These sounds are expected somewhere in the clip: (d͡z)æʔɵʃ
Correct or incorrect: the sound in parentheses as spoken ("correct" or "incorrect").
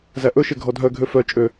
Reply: incorrect